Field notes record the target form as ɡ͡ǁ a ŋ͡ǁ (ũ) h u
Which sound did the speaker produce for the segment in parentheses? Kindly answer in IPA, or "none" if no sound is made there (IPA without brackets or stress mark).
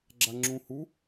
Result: ũ